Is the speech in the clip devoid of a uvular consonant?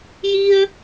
yes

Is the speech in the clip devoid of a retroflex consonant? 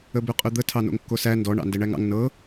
no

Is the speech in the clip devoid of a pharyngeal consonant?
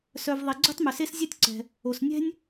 yes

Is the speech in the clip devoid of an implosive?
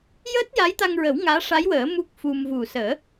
yes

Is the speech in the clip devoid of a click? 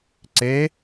no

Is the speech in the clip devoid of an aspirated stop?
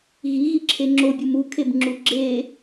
no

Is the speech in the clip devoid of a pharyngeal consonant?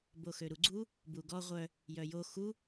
yes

